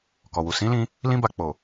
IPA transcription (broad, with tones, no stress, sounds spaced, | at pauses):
k ɔ˨ w u˨ s ĩ˨˦ l ĩ˧ | l ĩ˦ b a˧ k͡p o˨